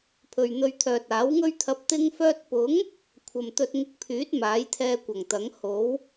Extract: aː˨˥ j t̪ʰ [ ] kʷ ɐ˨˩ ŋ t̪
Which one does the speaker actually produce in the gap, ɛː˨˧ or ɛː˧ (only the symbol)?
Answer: ɛː˧